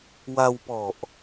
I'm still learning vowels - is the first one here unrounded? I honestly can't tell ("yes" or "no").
yes